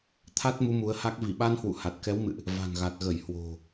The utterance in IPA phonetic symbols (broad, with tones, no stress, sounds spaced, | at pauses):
t̪ʰ a˦˥ t̚ m u˨˦ m u˨˦ ə̯ h a˦˥ k̚ v i˧˩ ɓ a˧ n h w ṵ˧˨ h a˨˩ t̚ k ɛ˨˦ w m ɨ̰˧˨ ʔ | v a̤˨˩ n ɣ a˨˩ t̚ ɣ ə˧˩ j h w o̤˨˩